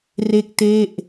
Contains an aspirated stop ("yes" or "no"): no